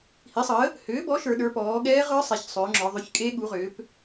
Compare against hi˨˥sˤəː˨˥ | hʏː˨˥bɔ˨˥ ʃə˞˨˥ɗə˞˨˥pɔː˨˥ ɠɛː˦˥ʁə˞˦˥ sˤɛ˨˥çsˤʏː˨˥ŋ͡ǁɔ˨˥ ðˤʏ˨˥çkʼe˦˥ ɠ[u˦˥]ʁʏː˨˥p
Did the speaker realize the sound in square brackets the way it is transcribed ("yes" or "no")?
no